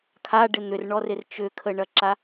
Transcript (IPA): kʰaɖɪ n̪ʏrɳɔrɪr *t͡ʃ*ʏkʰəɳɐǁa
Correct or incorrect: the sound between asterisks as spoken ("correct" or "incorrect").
correct